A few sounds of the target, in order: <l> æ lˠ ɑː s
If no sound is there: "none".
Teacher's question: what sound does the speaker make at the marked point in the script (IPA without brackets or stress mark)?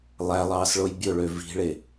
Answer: lˠ